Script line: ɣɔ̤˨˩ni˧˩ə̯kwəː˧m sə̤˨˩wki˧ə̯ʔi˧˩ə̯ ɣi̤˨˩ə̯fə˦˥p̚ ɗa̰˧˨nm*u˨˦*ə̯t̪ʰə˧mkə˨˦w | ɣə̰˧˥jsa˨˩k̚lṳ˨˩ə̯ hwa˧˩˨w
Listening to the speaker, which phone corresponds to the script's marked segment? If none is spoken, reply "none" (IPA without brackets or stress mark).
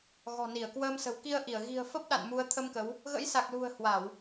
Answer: u˨˦